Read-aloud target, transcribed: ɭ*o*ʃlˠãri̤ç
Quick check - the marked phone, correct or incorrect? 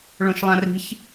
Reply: incorrect